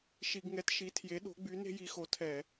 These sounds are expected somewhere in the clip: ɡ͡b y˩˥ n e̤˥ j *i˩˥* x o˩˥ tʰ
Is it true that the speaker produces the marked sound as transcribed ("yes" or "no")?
yes